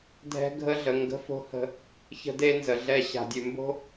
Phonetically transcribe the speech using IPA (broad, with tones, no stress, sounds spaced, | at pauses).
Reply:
dʱ ɛ̤˦ ɡʱ ə˦ ɮ ə˨ ŋ ɡ ə̤˦ f o̤˦ h ə̤˦ | ç ə̤˦ d e˦ n z ə˨ ɮ ɛ˦˨ ɕ a̤˨ dʲ ʉ˨ m b o̤˦